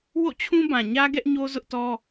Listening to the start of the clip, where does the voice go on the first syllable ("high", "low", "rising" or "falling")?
falling